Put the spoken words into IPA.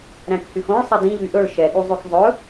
ɾ æ̃ k h y x õ ɭ sˤ ɛ d ĩ ʎ y ʔ ɵ ɭ ʃ ɛ ɠ u zˤ ʉ k zˤ ɵ

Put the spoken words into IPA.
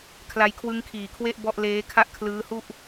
kʰ l a˧ j kʰ w ɯ˦˥ ŋ kʰ iː˨˩ kʰ w e˥˩ ʔ b ɔ˥˩ ʔ l eː˦˥ kʰ a˥˩ ʔ kʰ l ɯː˦˥ h u˥˩ ʔ

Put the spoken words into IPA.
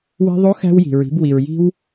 w i̤˧ ðˤ o˧˥ x æ̤˧ w j i̤˩ ɹ i̤˩˧ b w i˩ ɹ j i̤˧ w

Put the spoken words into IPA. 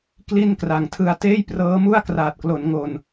k l i˥˩ n k r a˨˩ ŋ tʰ ɯ˧ a̯ t eː˥˩ j p r ɤː˦˥ m u˥˩ a̯ k r aː˨˩ t̚ k l o˩˦ n ŋ o˨˩ n

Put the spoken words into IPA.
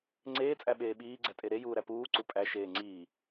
ŋ͡ǀ eː t͡sʼ æ ɓ eː ɓ iː ɡ͡ǀ æ tʼ e ɾ e j uː ɾ æ p uː ǀ u pʼ æ ʃ eː ŋ͡ǀ iː

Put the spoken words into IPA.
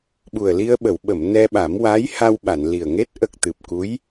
ɓ u˨˩ ə̯ l i˧ ə̯ ɓ ə˨˩˨ w ɓ ə˨˩˨ m n ɛ˧ ɓ a˨˩˦ m w a˧˥ j h a˧ w ɓ a˨˩˨ n l i˨˩ ə̯ ŋ e˦˥ t̚ ʔ ə˨˩ k̚ t̪ ɨ˨˩ p̚ k u˧˥ j

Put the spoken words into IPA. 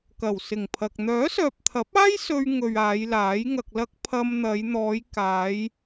k ɐ˨˩ w s ɪ˨˩ ŋ pʰ ɐ˨ k̚ n̪ œː˨˥ s œː˨ p̚ t̪ʰ ɐ˨˥ p̚ aː˥ j s ɵ˧ ɥ ŋ ɵ˨ ɥ aː˨˧ j l aː˨˥ j ŋ ɐ˧ k̚ l ɐ˥ k̚ pʰ ɐ˧ m n̪ ɐ˨˧ j n̪ ɔː˨˧ j k aː˨˧ j

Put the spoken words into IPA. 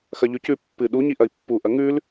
x ɐ ʎ ʉ c ʉ pː ɨ ɗ u ɲ i ʔ ɐ i̯ pː u ʔ ɐ ŋ ʉ l

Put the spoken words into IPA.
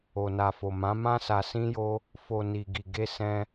o˨ n a˨ f o˨ m ã˨˦ m ã˦ s a˧ s ĩ˦ j o˦ | f o˨ n i˨ ɡ i˨ ɡ e˧ s ɛ̃˧

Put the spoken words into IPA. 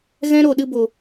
ɣ ɛ̃˦ ɾ o˨ ɗ ɨ˧ b o˨

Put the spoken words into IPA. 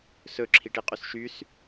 s ɵ ǁʰ i ʈ i qʼ y s ʃ y s

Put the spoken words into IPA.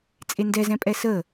t͡sʼ e n d ɛ z ɛ̃ pʼ ɛ s ə

